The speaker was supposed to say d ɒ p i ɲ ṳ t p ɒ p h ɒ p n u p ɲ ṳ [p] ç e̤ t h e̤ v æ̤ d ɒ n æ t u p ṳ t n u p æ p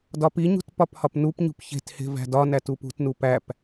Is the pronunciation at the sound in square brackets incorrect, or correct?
correct